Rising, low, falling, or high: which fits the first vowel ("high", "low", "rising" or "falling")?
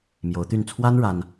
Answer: rising